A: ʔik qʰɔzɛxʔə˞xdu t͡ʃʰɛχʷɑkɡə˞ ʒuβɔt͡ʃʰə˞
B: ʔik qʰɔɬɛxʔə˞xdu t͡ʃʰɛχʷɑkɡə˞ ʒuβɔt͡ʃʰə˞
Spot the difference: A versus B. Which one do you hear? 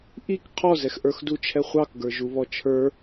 A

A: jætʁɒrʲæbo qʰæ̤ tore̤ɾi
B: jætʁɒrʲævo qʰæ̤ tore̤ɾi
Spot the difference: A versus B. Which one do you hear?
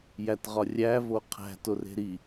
B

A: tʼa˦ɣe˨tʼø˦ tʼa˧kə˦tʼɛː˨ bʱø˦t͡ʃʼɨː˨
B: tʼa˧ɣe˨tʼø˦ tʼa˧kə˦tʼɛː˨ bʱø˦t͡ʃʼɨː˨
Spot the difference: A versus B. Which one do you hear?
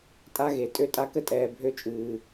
A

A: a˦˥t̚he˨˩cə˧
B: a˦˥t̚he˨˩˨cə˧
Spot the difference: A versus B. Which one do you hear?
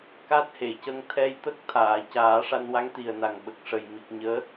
B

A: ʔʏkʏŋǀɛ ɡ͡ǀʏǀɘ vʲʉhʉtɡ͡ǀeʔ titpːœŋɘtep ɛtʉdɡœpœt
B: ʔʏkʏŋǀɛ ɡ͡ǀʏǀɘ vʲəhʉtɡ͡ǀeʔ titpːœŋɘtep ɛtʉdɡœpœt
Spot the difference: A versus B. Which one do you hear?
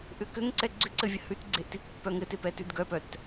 B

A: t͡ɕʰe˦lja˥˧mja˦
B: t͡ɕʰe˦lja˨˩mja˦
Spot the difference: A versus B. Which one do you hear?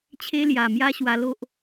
B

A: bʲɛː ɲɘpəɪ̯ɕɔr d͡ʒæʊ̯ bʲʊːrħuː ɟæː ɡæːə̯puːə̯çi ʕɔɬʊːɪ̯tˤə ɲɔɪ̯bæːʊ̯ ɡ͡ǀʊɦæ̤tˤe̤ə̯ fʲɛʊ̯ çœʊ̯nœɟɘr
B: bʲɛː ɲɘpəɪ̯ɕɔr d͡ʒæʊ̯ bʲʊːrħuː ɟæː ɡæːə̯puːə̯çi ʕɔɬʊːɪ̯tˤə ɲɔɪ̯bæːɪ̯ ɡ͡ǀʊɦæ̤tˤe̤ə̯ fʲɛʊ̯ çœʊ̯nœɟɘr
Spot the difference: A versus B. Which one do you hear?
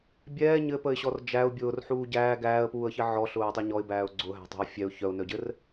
A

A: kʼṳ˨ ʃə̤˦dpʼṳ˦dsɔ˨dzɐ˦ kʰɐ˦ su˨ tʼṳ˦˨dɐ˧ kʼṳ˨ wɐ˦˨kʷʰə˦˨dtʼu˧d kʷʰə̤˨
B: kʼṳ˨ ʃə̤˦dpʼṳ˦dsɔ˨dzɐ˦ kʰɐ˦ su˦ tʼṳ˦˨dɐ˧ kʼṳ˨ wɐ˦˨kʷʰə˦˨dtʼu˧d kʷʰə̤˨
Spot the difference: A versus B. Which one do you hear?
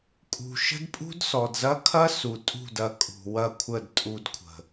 A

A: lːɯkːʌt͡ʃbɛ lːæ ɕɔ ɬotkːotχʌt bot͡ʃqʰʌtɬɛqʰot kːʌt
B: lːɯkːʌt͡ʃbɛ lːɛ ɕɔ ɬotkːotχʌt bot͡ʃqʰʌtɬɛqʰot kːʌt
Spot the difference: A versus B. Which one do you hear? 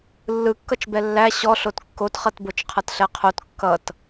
A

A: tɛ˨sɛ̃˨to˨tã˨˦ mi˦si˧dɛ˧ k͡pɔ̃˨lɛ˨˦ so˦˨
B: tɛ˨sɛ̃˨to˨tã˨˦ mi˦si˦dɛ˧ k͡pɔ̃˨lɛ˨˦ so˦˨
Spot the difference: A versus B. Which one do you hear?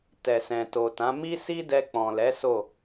B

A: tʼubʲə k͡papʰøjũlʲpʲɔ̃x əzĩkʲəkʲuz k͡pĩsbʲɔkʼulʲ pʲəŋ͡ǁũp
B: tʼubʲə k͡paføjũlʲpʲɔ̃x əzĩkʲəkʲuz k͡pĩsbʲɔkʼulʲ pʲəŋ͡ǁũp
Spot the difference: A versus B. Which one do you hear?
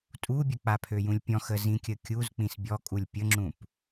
A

